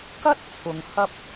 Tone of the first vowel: high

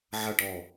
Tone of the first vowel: falling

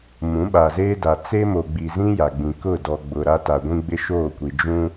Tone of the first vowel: rising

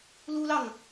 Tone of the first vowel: high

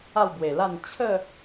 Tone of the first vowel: falling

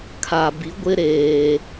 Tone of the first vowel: low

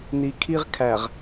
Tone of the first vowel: low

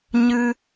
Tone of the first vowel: high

